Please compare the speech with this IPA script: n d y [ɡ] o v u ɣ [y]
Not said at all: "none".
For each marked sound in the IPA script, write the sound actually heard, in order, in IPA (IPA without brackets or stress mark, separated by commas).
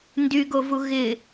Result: ɡ, ɪ